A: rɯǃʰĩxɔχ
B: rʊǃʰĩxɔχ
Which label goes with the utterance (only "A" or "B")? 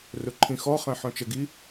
B